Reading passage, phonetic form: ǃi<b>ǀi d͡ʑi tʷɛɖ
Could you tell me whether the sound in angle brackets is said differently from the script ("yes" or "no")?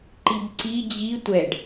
no